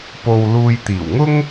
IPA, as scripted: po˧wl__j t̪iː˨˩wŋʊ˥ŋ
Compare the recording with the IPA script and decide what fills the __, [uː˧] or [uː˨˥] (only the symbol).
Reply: uː˧